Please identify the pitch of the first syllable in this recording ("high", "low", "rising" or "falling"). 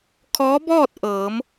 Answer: rising